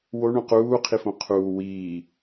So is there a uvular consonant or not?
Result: yes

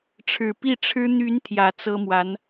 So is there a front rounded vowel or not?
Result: yes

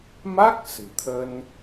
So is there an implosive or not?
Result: no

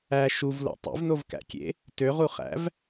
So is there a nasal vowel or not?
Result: no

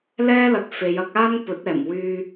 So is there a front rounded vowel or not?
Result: yes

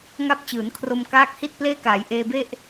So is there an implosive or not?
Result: no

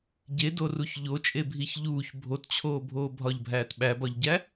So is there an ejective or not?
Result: yes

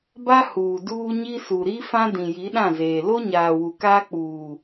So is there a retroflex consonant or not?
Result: no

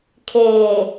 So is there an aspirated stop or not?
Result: yes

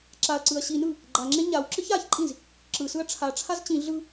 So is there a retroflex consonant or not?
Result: yes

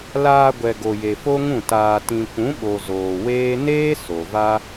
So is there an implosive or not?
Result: yes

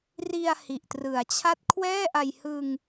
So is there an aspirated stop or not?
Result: yes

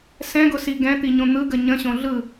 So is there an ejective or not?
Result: no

